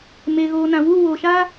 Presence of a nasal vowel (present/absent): present